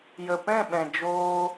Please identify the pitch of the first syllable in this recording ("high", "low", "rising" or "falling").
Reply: low